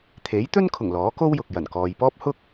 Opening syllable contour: rising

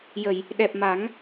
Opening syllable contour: low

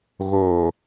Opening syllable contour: low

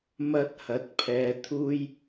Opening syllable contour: high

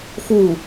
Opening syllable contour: falling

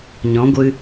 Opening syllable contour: rising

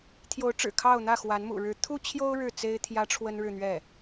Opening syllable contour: rising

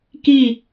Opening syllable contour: falling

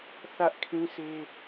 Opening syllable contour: high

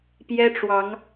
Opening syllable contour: high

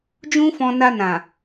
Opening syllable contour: high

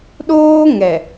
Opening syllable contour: high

